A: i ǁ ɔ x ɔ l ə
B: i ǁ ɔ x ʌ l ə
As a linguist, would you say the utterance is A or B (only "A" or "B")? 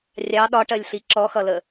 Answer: B